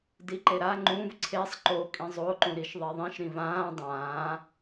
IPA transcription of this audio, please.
d i ǃ e ɾ a ŋ͡ǃ ũ v ǀʰ e sˤ ǃ o kʼ ĩ zˤ o ǃ ũ ɾ i ʃ ðˤ e ðˤ ĩ ʃ ɾ ĩ v ãː dˤ ãː

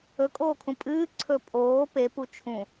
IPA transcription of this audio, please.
ɵ kʼ oː kʰ ũ pʼ ɨː ǀʰ ɵ pʼ oː p e p u t͡ʃʰ ũ

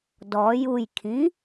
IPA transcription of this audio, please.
d ɔ j u j kʰ ĩ

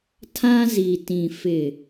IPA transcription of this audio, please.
tʰ ã˦ z i˨ t ĩ˨ f ɪ˨

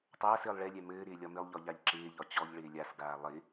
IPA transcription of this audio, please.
tˤ aː s ɘː lˠ ɭ ɛ lʲ ɛ m ɘː ɾ ɪː lʲ ɒ m ɪ lˠ ʎ ɒ ʎ a ʎ ǁ ɪː ʎ ɒ t͡ɕ ɔ ʎ ɭ ɪː lʲ a s ɡ aː lˠ ɪ

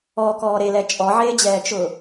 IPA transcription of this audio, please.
ɔ k ɔː ɾ e l ɛ t͡ʃʼ ɔ ʕ eː d͡ʑ ɛː t͡ʃ ʊː

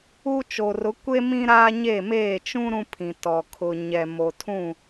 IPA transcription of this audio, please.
u˦ t͡ʃ o˨ r ʊ˨˦ kʷ e˦ m ĩ˦ ɾ aː˦ ɲ eː˦˨ m eː˦˨ t͡ʃ ũ˦ ɾ ũ˦ pʰ ĩ˨ t ɔ˨ kʰ ʊ˨ ɲ ɛ˨ m o˨ tʰ ũ˦˨

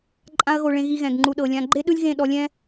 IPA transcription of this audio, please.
ǃʼ ã˦ ɐ̯ ɣ o˧ ɭ ẽ˧ ɣ i˧ ɣ ɛ̃˨ ɡ ŋ͡ǃ u˨ ɗ ɤ˨ lʲ ã˧ ɡ͡ǃ e˦ ɗ ɯ˦ lʲ ɣ ẽ˦˨ ɗ ɔ˧ lʲ ɛ̃˦

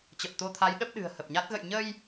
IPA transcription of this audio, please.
t͡ɕ ə˨˩ p̚ t̪ o˧ t̪ʰ a˨˦ j ɗ ə˦˥ p̚ ɗ ɨ̤˨˩ ə̯ h ə˨˩ p̚ ɲ a˦˥ t̚ ɣ ə̰˧˨ j ɲ ə˧ j

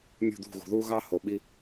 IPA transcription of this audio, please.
mʲ ṳ˦˨ d̪ ṳ˦˨ ɣ ṳ˨ ð uː˦ ɣ ɑ˦ h o˨ ɓ i˦

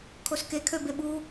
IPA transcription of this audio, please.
kʰ o s k e kʰ ø b e ɓ u

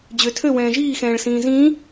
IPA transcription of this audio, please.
d͡ʑ ø tʰ ø w ɛ̃ː ʒ iː x ɛ̃ː ɭ s ĩː z ĩː

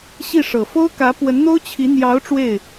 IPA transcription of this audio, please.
ɕ i˥˩ ʂ ɤ˨˩ f o˥ ʊ̯ k ä˧˥ p w ə˧˥ n n̪ o˥ ʊ̯ t͡ɕʰ i˧˥ n̪ j ɑ˧˥ ʊ̯ ʈ͡ʂ w e˥˩ ɪ̯

